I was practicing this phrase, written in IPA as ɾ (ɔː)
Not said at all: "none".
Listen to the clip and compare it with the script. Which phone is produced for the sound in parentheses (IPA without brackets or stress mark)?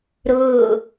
ʊː